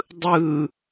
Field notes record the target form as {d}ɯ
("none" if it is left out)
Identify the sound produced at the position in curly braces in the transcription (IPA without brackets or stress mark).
dˤ